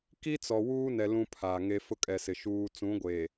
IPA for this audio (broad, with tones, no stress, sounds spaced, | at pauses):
k i˦ t͡s ɔ˨ w uː˦ n ɛ˨ l ũ˦ pʰ aː˨ ŋ e˦ f ʊ˦ kʼ ɛ˨ s ɪ˨ ʃ uː˨ t͡s ũ˨˦ ɡʷ eː˨